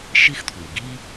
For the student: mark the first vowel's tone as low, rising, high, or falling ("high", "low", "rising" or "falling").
high